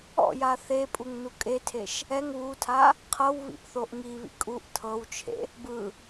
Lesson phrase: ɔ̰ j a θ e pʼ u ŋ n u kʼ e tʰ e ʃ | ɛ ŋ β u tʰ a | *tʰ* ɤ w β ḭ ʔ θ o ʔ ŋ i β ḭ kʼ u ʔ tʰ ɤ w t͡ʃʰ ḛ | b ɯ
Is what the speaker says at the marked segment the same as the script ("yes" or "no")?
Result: no